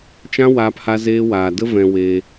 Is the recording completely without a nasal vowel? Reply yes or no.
no